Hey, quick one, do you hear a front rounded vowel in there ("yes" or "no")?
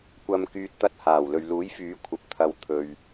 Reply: yes